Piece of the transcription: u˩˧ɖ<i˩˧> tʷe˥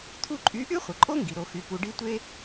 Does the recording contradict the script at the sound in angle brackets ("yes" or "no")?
yes